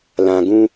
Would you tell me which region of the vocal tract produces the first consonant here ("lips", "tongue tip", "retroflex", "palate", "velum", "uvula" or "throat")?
tongue tip